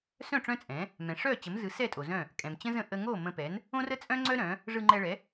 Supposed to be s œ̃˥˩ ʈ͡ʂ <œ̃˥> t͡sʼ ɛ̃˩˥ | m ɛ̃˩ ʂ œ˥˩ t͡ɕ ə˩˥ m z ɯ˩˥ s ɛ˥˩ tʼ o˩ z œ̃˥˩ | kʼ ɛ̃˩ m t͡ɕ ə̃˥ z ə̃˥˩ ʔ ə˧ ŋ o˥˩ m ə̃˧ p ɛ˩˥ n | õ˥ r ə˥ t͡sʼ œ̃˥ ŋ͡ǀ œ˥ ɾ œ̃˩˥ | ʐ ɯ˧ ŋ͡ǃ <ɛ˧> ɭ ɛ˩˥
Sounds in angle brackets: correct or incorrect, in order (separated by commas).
correct, correct